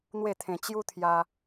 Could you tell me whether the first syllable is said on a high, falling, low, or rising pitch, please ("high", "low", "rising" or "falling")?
falling